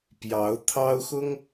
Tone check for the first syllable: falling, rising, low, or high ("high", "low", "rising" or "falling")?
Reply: rising